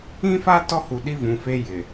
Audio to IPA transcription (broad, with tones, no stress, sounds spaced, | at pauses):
ĩ˦ f a˦ t ɔ˦ h u˨ ɗ i˦ v ũ˨ f e˦ j ɪ˨